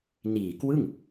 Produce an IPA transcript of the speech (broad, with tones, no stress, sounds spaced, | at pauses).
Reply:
n iː˨˩ k w ɯ˥˩ ŋ